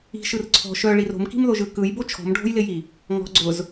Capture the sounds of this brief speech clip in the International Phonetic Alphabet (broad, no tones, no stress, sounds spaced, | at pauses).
i̤ ʃ ɯ r ǀʰ ɔ̤ ʃ œ ɭ i r o̤ m k i̤ m ð o ʒ ɯ k ɯ j b o t͡ʃʰ ɔ̤ m ɖʱ o̤ j l ɪ j i | ŋ ɔ̤ ɡ͡ǀ ʊ z